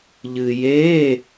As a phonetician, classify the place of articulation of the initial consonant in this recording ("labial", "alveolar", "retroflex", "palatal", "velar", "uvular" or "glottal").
palatal